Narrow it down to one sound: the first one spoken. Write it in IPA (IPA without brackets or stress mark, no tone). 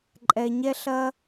ǃʼ